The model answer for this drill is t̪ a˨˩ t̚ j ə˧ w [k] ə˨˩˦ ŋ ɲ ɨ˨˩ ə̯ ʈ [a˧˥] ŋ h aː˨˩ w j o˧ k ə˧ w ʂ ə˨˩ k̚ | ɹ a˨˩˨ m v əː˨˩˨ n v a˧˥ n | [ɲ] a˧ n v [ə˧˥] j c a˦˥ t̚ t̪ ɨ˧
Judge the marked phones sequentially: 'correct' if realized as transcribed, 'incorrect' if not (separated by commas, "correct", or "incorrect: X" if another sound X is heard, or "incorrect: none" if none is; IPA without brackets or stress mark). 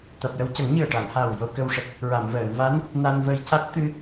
incorrect: c, incorrect: a˨˩˨, incorrect: n, incorrect: ə˧